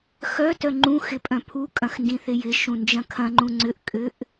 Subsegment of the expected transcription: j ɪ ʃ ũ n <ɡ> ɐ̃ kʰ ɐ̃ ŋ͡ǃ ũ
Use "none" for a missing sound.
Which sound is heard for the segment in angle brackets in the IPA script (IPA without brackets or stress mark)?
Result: d͡ʒ